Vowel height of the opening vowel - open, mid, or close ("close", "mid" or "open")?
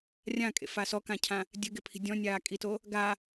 open